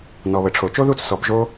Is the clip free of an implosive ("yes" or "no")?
yes